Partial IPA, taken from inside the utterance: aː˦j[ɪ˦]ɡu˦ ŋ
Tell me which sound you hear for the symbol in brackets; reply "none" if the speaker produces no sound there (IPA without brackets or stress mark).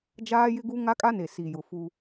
ɪ˦